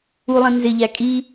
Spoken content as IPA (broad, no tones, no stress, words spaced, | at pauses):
ulˠĩ nzɪʎæ kʼi